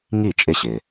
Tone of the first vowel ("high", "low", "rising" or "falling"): falling